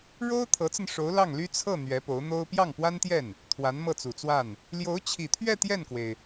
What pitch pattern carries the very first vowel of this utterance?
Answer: high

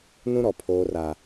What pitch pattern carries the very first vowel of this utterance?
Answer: high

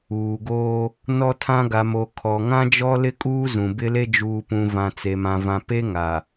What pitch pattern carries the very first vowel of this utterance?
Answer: low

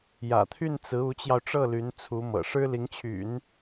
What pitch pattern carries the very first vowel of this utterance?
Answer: low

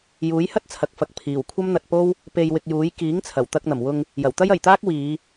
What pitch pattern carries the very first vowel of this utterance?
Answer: rising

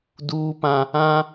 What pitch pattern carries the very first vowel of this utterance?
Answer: high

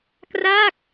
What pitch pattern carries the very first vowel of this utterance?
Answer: falling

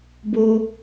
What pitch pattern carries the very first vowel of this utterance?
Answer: high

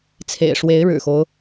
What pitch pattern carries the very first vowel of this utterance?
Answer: low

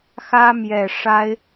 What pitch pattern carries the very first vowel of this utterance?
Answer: high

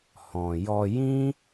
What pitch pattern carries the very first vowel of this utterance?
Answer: low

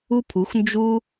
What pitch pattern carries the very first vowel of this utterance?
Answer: high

